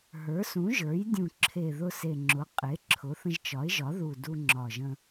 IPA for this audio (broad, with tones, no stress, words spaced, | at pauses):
ɦə˞˩˥sũ˩˥ʒə˞˩˥j dʲũ˨˩ǁʰe˨˩ ðʊ˧se˨˩ŋ͡ǁʊ˩˥ qʼe˩˥ǁʰʊ˩˥θə̃˧ʒ t͡ʃɒ˩˥ɪ̯ʒɒ˩˥ðu˨˩ du˧ ŋ͡ǁɒ˨˩ ʒə̃˧